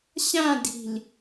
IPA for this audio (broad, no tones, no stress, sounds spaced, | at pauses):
ɕ ã d i̤ l